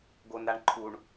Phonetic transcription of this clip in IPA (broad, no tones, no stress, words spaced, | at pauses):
ɡonɾaɳǃʰuɳ